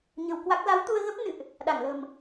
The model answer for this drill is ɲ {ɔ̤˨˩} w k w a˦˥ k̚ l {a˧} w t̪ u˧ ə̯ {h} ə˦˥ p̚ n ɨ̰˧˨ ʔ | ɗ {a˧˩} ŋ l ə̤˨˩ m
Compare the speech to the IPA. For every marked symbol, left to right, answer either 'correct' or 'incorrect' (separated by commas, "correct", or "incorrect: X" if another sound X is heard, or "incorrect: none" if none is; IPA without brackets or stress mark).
incorrect: ə̤˨˩, incorrect: a˨˦, incorrect: ɣ, correct